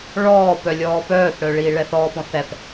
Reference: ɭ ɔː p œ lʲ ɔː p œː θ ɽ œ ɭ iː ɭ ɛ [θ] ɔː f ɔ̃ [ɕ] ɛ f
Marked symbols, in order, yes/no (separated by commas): yes, no